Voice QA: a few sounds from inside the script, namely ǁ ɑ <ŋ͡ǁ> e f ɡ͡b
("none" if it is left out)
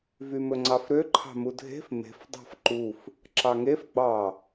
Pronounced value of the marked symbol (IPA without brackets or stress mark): ŋ